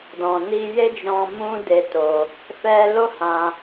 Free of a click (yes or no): yes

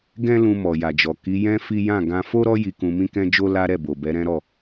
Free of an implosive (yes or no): yes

